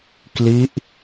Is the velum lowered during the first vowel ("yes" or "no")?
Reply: no